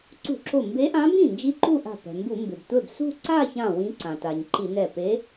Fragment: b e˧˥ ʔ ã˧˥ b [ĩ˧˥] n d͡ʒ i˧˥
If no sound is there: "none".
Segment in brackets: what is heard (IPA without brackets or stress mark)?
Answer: ĩ˥˩